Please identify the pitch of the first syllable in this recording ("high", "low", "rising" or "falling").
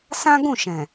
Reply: high